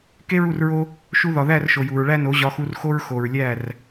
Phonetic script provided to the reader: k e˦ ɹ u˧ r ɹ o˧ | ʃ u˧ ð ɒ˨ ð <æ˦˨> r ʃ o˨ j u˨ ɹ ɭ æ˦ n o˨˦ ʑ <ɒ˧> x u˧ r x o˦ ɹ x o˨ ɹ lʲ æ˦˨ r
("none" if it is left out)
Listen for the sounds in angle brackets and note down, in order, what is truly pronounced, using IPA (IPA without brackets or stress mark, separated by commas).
æ˦˨, ɒ˧